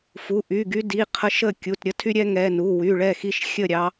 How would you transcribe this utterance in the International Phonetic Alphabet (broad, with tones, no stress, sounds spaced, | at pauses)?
f u˩˧˩ ʔ y˩˧˩ ɡ y˦ d i˩˧˩ qʰ ə˦ ʃ ə˥˩ kʲ u˩˧˩ t ɾʲ ə˦ tʰ y˦ ɾʲ ɛ˦ ŋ ɛ˩˧˩ n u˩˧˩ w y˩˧˩ ɭ ɛ˥˩ x i˦ ʃ xʲ ə˥˩ ɾʲ ɑ˦